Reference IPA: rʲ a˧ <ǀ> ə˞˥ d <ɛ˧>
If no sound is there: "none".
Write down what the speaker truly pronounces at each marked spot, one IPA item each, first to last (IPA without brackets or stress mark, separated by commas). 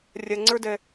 ŋ͡ǀ, ɛ˧